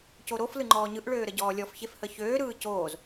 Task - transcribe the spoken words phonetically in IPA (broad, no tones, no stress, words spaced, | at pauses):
coɾof lɯŋ͡ǃɔːɲɯʔ ɭøːɾəɟɔːlʲɔf çefhəçøː ɾɯːcoːz